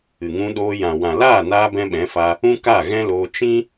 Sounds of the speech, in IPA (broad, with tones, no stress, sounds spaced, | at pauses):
ɨ˨ ŋ ũ˧ ɗ oː˧ j ã˨ w ã˨ l aː˦˨ n aː˧ b ɛ̃˦ ɓ ɛ̃˨˦ f a˧ | ũ˦ k a˦˨ ɣ ɛ̃˦ l oː˧ t͡ʃ ĩ˦